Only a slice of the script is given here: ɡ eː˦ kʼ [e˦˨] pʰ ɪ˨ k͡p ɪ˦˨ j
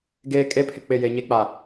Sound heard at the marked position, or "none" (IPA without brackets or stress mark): e˦